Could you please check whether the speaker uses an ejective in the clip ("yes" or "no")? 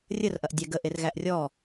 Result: no